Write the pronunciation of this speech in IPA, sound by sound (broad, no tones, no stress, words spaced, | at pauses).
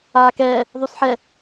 aːkɛː | ðˤusħɛ